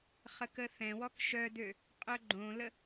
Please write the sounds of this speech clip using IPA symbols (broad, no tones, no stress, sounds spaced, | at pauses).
χ ə k ə θ ɛ̃ w ɔ k ʃ œ d ø | qʼ œ ɡ͡ǃ õ l ə